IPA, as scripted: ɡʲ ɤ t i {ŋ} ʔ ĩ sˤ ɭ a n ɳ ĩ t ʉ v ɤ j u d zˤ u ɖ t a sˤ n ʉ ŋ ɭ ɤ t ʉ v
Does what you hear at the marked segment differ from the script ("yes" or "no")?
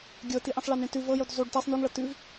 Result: yes